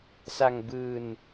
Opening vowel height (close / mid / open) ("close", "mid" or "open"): open